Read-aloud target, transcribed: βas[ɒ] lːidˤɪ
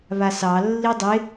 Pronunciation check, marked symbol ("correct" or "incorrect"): incorrect